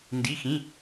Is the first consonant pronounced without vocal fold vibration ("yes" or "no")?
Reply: no